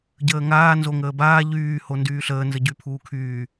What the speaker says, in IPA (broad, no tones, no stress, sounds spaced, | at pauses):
ɟ əː ŋ aː n z o ŋ əː b aː ʎ yː h o n d yː ɬ əː n z ə ɟ y pʰ uː kʰ yː